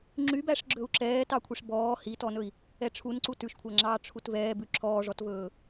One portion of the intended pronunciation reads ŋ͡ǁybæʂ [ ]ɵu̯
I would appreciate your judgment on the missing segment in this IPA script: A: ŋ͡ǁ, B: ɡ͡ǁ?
B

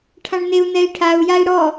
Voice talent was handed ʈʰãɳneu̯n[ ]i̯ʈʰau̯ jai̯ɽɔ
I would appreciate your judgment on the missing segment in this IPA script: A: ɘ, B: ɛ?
B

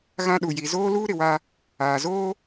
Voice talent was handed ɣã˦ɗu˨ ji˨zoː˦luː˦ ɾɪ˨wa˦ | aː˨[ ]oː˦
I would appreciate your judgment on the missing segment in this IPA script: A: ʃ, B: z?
B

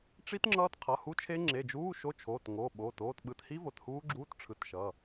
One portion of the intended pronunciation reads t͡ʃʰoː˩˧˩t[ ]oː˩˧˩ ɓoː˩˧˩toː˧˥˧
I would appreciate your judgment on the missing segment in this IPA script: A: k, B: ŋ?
B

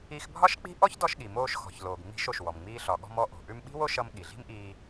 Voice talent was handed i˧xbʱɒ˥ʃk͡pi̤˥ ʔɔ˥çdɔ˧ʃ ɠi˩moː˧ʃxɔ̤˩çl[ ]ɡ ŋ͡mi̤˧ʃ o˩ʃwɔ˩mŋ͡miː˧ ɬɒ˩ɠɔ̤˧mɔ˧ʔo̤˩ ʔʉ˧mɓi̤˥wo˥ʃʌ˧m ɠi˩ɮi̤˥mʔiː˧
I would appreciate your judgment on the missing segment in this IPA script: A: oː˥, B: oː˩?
B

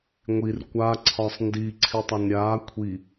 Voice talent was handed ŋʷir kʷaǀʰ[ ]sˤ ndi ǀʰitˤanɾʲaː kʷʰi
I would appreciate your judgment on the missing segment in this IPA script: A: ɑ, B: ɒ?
B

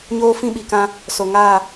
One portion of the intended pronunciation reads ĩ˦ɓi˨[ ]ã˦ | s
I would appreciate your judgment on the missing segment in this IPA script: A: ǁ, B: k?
B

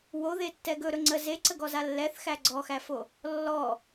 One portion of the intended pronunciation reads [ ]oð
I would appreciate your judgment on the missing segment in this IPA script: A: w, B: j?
A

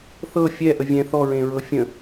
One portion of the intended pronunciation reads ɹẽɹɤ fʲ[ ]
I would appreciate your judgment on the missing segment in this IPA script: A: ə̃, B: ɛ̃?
A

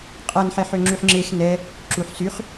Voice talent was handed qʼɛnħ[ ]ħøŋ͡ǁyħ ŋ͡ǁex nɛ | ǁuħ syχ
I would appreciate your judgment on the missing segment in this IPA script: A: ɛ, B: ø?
A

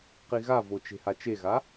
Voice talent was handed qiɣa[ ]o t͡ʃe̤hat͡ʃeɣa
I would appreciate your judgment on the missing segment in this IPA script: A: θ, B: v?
B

